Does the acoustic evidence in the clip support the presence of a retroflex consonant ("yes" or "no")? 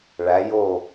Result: yes